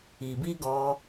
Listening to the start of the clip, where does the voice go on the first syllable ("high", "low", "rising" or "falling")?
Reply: low